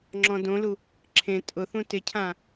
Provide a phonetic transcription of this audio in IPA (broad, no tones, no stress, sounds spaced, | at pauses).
ŋ͡ǁ ɔ̃ d õ l u | ǁʰ ẽ tʼ ʊ θ ũ t ɪ cʰ ã